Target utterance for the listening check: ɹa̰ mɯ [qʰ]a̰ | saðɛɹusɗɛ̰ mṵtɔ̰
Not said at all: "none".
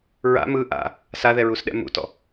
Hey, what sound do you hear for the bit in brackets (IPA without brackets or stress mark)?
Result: ʔ